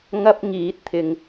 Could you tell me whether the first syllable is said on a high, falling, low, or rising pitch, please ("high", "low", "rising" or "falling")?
high